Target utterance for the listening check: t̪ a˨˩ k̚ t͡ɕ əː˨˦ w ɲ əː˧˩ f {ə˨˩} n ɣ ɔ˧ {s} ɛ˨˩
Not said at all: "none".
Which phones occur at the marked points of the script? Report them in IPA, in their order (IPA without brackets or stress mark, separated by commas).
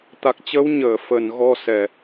ə˨˩, s